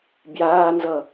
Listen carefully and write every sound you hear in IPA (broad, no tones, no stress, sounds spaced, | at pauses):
b j aː n z ʌ